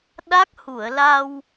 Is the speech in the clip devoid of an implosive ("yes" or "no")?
no